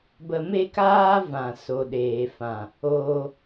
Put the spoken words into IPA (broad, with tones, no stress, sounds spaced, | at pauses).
b ə˧ m e˦ k aː˦ v ã˨ s o˨ ɗ eː˨ f ã˨ | oː˧